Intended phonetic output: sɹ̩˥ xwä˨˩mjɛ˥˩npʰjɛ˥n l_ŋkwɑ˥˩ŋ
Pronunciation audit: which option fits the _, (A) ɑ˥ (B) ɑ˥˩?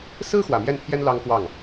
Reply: A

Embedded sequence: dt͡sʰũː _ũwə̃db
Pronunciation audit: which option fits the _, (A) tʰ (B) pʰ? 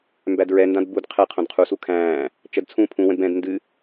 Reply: B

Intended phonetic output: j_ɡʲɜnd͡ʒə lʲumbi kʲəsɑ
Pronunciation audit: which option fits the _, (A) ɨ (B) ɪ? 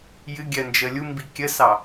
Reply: A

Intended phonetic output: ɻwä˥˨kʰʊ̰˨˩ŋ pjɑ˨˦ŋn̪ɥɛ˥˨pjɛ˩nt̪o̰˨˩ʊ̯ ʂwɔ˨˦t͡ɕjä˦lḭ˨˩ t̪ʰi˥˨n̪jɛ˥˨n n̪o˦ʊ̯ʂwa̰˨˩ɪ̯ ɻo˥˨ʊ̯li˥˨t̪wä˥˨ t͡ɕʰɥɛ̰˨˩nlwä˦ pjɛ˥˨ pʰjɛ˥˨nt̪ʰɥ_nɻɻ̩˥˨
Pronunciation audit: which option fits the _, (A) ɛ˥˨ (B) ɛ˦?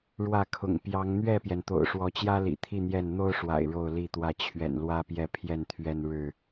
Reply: B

